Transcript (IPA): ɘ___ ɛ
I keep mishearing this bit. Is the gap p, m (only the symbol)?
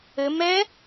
m